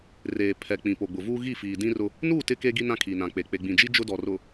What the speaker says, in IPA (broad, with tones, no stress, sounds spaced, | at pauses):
r eː˨ pʰ ɛ˨ k͡p ĩ˨ p o˨ ɡ͡b ʊ˨ v uː˦ ɣ i˦˨ f iː˨ d ĩ˦ r ʊ˦ | n uː˦˨ t ɪ˦ k e˦ ɡ i˦ n ã˦ kʰ i˨ n ã˨ k͡p e˨ k͡p e˨ ɡ͡b ĩ˨ d͡ʒ i˦ d͡ʒ ʊ˦ d ɔ˨ r ʊ˨